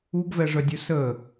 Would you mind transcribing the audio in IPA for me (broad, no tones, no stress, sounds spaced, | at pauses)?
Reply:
u ɡ v ɛ ʐ œ dʲ u s ə